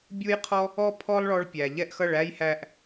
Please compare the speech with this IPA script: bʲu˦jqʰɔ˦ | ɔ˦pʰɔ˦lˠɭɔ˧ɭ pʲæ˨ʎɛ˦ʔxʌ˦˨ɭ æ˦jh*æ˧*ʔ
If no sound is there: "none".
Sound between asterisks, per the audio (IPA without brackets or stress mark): æ˧